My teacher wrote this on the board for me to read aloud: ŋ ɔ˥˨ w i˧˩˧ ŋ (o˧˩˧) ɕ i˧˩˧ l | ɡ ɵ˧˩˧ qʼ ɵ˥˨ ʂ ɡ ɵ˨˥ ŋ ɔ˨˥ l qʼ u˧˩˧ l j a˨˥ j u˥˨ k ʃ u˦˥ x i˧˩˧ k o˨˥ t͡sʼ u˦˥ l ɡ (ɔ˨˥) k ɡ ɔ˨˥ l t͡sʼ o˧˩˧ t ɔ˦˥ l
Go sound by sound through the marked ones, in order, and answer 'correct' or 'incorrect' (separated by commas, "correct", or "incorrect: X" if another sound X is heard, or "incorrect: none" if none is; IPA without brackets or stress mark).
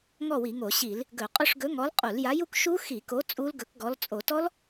correct, incorrect: ɵ˨˥